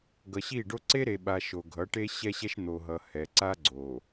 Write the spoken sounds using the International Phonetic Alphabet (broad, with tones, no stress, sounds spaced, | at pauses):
ɡ ʌ˨ ɕ i˦˨ ɖ o˦ ǀ e˦ ɾ e˨ ɓ a˨ ʃ o˨ ɡʱ ʌ˨˦ ʈ e˦ ɕ ɛ˦ ɕ ɛ˦ ʃ n̪ o˨ ɦ ʌ˨ h ɛ˨ ǀ a˦ ɡ͡ǀ o˨